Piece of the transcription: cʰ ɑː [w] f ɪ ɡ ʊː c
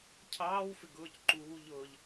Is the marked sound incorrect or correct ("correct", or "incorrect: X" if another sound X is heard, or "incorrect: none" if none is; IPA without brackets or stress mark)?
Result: correct